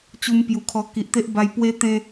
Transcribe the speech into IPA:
t͡ɕ u˧ m p j u˨˩ kʰ ɔ˧ k i˨ ʔ t̪ e˦ ʔ b a˧ j p w e˧ t̪ ẽ˧

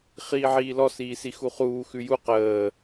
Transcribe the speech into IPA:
χ iː ʕ iː l ɔ s iː s i x u χ uː x ʉ j u q əː

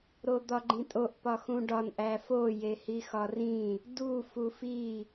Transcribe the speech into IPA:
ɾ o d̪ ɒ ɡ͡ǃ ĩ tʼ o ʔ p ɒ x ũ ɖ ɒ n ʔ æ f o j e h i x ɒ r ĩ | d u f u f i

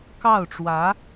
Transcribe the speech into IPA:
k ɑ˥˩ ʊ̯ ʈ͡ʂ w ä˧˥

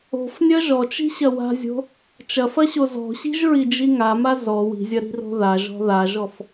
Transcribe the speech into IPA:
o̤ f nʲ ɐ ʒ ɔ t͡ʃ i̤ ɕ ɐ w a̤ zʲ o̤ | t͡ʃ ɐ f ɐ ɕ o z ɔ̤ ɕ i̤ ʒ ɹ i d͡ʒ i ŋ a m a z ɔ w i̤ zʲ ɐ ɾ i̤ r o̤ ð a ʒ ɔ̤ ð a ʒ ɔ f

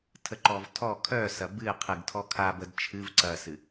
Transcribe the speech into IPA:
tʰ ə ǃ ɔ v tʰ ɔ kʰ œ s ɐ b ɨ qʰ ɨ ɡ tʰ ɔ kʰ a b ə d t͡ʃʰ ɨ v ǀ ɐ s ɨ

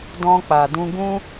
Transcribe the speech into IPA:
d ɔ̃˧ k͡p a˨ d ũ˧ ɡ ũ˦

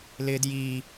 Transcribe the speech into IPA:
l ɪː d j iː

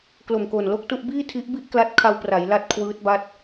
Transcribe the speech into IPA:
k l o˨˩ m k o˨˩ n l o˥˩ k̚ t u˥˩ ʔ b iː˥˩ tʰ i˦˥ ʔ b i˥˩ ʔ k l a˦˥ t̚ kʰ a˧ w p r a˩˦ j l a˦˥ t̚ kʰ w ɯː˦˥ t̚ b a˦˥ t̚

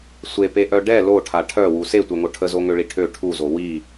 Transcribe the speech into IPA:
sʷ e p e ʔ œ ɖ ɛ l o ʈʰ a ʈʰ œ w u s e tʷ œ ŋ o ʈʰ ə z o ŋ ø ɭ i ʈʰ ø ʈʰ u z o w i

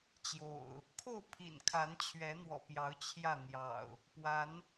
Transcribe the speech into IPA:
t͡ɕ j o̰˨˩ ʊ̯ | kʰ o˥˨ ʊ̯ pʰ ḭ˨˩ n kʰ a˨˦ n t͡ɕʰ ɥ ɛ˨˦ n̪ w ɔ̰˨˩ p j ɑ˨˦ ʊ̯ t͡ɕʰ j ä˥˨ n̪ j ɑ̰˨˩ ʊ̯ | p w a˨˦ n

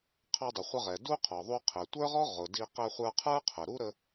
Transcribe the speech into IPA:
qʰ ɑ˧ dˤ ə˩ χʷ ə˧ ʁ ɛ˩ d u˥ qʰ ɔ˩ ðˤ u˧ qʰ ɛ˩ tʷ ə˞˥ ʁ ɔ˥ ʁ ʊ˩ d i˧ q ɛ˧ χʷ ə˞˧ qʰ ə˞˥ qʰ ə˩ ɾ u˥ ɾ ə˧

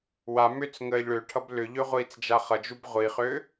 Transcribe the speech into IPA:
w a m ʏ t͡s ŋ əː ʎ ɭ ø ʈʰ ʌ b l ʏ ʎ ø ʁʷ iː t͡s d͡ʒ a χ ʌ d͡ʒ u b ʁʷ i χ ø

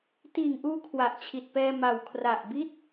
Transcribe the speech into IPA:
t iː˨˩ ŋ ʔ uː˧ kʰ w a˨˩ ʔ t͡ɕʰ i˨˩ t̚ p ɛː˧ m a˨˩ w kʰ r a˨˩ ʔ b i˥˩ t̚

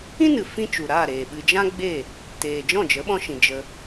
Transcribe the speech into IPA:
ĩ˦ n ɨ˨ f ĩ˦ t͡ʃ u˨ ɾ aː˦˨ ɾ eː˨ ɓ ɨ˧ d͡ʒ ã˦ ɡ͡b e˦˨ | t eː˨ d͡ʒ ɔ̃˦˨ d͡ʒ ə˨˦ ɓ ɔ̃˧ ʃ ĩ˨ d͡ʒ ə˧

